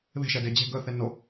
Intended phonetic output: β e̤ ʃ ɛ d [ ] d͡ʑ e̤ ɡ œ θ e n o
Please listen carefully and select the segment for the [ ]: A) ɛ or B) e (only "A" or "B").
B